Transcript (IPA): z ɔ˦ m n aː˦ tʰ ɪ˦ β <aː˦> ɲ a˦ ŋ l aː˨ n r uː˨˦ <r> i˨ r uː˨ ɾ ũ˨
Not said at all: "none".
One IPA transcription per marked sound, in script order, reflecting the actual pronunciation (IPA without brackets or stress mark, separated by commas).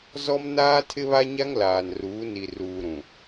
a˦, n